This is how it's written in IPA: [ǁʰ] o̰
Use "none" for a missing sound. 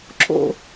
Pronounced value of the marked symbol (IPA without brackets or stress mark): ǁʰ